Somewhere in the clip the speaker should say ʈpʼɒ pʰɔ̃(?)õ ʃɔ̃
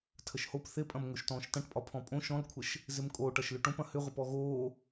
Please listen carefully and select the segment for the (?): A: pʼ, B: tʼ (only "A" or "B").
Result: A